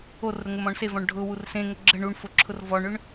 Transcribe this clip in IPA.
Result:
o r ɾ ʊ ŋ ʊ m ɔ̃ ɳ s e v ɔ̃ ɳ ɖʱ ʊ w u r s ẽ ŋ ə ɡ͡ǁ ə ɳ u ɳ f ʊ ǁʰ ʊ r v ɔ ɳ ʏ ɳ

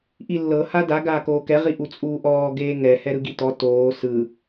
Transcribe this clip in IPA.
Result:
ʔ i lː ɤ h a d a ɡ aː k oː k ɛ ʁ i ʔ u t͡sʼ uː ʔ ɔː ɡ eː ŋ ɛ h ɛ ɾ ɯ ɡ i t ɔ t oː s ɯ

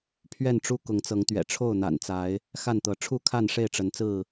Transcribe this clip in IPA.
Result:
pʰ ɥ ɛ˥˨ n ʈ͡ʂ u˦ k ʊ˨˦ ŋ t͡s ɤ˨˦ ŋ t̪ ɥ ɛ̰˨˩ ʈ͡ʂʰ o˥˨ ʊ̯ n̪ a̰˨˩ n t͡s a˨˦ ɪ̯ | x a˥˨ n t̪ ɤ˨˦ ʈ͡ʂʰ u˥˨ kʰ a˥˨ n ʂ e˥˨ ɪ̯ ʈ͡ʂ ə˨˦ n t͡s ɹ̩˥˨

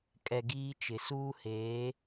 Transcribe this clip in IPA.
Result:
kʼ ɛ˨ ɡ iː˦ t͡ʃ ɪ˨ s uː˦ h eː˨˦

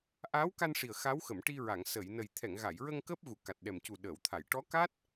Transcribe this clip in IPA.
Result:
ʔ aː˧˥ w k a˧ n ʂ i˨˩ ə̯ x a˧˥ w x ə˨˩˨ m ʈ i˧ ɹ a˨˩˨ ŋ s ə˨˩˨ j n ə˨˩ j t̪ʰ ɛ˨˩˨ ŋ ɣ a˨˩˨ j ɹ ə˧ ŋ k əː˦˥ p̚ ɣ u˨˩˨ k a˨˩ t̚ ɗ ɛ˨˩ m c u˨˩ ɗ əː˨˩˨ w t̪ʰ a˨˩˨ j ʈ ɔ˧˥ k a˦˥ t̚

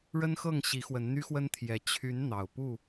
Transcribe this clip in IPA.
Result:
ɻ ə˦ n x ɤ˥˨ ŋ ɕ i˨˦ x w ə˨˦ n n̪ y˦ x w ə˦ n t̪ʰ j ɛ˨˦ t͡ɕʰ y˨˦ n n̪ ɑ˨˩ ʊ̯ p u˥˨

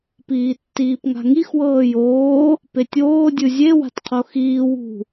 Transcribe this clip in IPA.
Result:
p iː tː iː p ŋ a̤ ŋ i x w ɤː j oː | p e tʲ oː dʲ ɯ zʲ e w a̤ t qʰ o x iː w ṳ

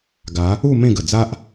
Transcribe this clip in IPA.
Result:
ɡ a˨˦ | u˥˧ m ẽ˥˧ ɡ ə˨˩ d͡z a˦ ʔ

